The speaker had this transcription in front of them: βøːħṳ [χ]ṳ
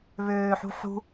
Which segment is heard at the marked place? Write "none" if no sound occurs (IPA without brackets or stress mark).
ħ